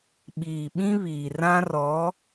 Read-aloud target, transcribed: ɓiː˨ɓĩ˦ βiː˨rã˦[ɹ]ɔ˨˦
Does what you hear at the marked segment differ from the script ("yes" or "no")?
yes